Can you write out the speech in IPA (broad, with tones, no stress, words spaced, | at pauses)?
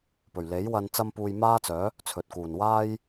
pɵ˨˩ɥle˨˥j wɐ˨nt͡sɐ˧mpuː˨j maː˥t͡sœː˨˥ | t͡sʰɵ˨t̚kuː˨˩n waː˥j